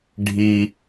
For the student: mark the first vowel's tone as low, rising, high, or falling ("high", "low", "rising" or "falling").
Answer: high